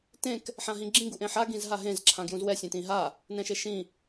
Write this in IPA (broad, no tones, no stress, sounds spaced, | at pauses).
t ẽ k | ħ ã ɦ ĩ ɡ͡ǁ ĩ ɡ u ʔ ẽ ħ a ɡ ĩ z ɦ a ɦ ẽ z ǁʰ ã ɡ j ũ z w ɛ sʲ ẽ t ĩ ɦ a | n ɛ̃ ʃ e ʃ ĩ